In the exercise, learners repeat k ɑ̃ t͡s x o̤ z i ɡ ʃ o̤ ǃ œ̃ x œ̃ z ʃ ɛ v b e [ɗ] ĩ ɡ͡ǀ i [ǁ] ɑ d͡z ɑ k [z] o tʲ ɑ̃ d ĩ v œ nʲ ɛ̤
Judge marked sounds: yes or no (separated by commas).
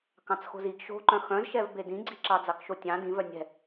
no, yes, no